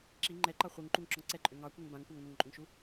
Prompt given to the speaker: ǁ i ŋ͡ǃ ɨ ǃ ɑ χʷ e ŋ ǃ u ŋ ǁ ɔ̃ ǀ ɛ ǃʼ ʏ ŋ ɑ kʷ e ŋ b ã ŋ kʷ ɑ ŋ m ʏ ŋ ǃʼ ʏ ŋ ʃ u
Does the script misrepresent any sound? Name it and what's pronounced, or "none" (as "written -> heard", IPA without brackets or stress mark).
ɨ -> ɛ